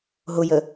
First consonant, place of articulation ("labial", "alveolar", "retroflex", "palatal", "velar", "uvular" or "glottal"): glottal